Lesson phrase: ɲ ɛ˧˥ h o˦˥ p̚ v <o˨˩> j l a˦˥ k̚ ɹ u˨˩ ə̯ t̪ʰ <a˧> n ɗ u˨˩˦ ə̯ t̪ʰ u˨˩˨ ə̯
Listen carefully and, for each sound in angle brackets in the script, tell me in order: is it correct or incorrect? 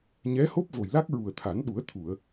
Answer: correct, incorrect: a˨˩˦

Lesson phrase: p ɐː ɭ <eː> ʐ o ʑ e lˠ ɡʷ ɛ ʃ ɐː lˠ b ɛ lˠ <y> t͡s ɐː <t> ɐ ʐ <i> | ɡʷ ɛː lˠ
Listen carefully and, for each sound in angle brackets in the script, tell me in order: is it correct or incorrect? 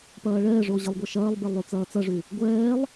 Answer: incorrect: ɛː, correct, incorrect: t͡s, incorrect: y

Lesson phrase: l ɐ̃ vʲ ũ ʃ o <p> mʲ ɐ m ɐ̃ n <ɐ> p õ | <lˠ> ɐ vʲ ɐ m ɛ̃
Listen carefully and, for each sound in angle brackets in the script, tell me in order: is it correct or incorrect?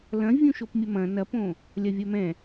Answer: correct, correct, incorrect: lʲ

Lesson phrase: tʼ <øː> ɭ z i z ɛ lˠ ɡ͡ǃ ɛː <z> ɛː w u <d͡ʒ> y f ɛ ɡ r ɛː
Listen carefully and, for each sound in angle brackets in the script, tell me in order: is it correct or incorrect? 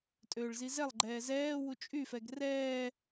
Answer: correct, correct, incorrect: t͡ʃʼ

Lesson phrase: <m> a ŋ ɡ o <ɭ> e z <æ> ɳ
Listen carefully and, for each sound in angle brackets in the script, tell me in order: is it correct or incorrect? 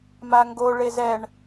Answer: correct, correct, incorrect: ɛ

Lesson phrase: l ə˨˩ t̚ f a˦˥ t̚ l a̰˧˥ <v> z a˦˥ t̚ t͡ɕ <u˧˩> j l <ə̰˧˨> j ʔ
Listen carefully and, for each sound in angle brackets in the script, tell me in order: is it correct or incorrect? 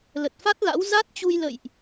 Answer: incorrect: w, incorrect: u˧, correct

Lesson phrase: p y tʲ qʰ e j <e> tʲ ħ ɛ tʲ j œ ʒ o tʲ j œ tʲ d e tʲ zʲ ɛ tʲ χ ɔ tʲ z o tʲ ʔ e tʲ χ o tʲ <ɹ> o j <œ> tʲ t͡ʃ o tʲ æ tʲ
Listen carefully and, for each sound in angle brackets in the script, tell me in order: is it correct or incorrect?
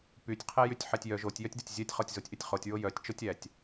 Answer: incorrect: y, correct, correct

